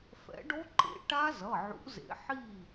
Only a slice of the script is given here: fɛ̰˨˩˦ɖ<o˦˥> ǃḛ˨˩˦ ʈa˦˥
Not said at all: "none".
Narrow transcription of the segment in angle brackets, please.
o˦˥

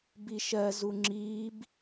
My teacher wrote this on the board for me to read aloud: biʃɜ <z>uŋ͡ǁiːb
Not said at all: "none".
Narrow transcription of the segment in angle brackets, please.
z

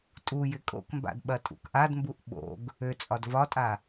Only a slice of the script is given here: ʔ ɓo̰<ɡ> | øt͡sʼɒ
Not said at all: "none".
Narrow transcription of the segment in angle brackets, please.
ɡ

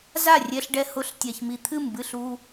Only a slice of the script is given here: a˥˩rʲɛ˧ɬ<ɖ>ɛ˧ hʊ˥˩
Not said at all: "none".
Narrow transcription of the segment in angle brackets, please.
ɖ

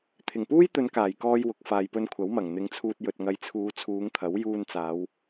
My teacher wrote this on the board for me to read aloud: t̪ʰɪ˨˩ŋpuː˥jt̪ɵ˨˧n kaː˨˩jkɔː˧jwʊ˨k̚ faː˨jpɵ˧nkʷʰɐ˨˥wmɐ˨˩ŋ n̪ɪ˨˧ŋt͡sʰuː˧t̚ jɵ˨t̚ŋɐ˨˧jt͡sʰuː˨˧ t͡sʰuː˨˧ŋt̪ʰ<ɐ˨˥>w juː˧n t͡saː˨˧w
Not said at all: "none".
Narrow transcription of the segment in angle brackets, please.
ɐ˨˥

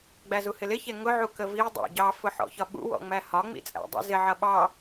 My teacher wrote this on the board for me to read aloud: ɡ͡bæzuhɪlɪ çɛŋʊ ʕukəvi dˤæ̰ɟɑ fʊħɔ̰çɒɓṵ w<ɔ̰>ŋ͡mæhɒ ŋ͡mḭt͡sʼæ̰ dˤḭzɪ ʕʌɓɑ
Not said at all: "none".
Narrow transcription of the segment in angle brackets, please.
ɔ̰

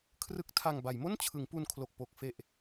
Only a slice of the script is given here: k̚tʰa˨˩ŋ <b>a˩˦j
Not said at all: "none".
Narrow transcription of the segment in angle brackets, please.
b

